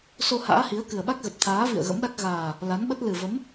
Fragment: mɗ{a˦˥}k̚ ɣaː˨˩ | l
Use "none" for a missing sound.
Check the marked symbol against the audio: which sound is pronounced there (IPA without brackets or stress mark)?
a˦˥